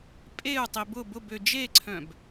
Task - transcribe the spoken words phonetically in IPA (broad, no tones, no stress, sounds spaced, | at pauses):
pʼ e u̯ tˤ i b ʊ b ʊ b ø d͡ʒ e ǀʰ œ̃ b